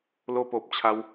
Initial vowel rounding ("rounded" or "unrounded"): rounded